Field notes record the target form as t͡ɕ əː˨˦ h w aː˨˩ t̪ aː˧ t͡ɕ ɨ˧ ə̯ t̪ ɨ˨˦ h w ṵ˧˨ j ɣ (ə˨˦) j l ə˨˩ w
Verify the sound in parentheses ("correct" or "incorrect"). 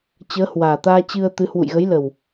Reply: correct